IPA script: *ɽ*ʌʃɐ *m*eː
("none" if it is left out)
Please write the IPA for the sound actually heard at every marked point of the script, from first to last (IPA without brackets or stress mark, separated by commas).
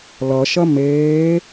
l, m